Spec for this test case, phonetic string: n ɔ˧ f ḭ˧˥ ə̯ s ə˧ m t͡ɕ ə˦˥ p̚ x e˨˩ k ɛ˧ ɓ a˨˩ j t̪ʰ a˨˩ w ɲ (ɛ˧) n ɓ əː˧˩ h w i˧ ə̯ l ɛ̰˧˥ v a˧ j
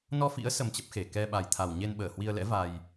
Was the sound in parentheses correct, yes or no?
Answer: no